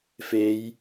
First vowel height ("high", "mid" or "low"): mid